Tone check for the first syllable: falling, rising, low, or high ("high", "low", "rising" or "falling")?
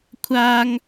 high